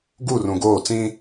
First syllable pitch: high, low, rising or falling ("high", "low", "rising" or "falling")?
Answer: falling